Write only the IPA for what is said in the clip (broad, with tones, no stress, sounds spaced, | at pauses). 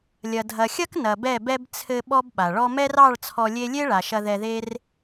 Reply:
lʲ ɐ˨ dʱ ɐ˨ xʲ ɐ˦ k n ɐ˨ b ɛ˦˨ b ɛ˦ b t͡sʰ ɘ˧ ɓ ɔ˦ b ɓ a˨ ɭ ɔ˧ m ɛ˦ r ɑ˦˨ ɭ t͡sʰ ɔ˧ lʲ e˦ lʲ e˦ ɭ a˨ ʃ ɐ˧ ð ɛ˧ ð e˦ r